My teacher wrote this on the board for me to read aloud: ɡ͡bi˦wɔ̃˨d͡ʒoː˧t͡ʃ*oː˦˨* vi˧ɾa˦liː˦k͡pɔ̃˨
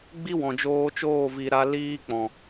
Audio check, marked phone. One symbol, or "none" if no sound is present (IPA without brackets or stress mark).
oː˦˨